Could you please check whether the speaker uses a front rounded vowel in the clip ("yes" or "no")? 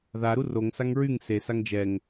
yes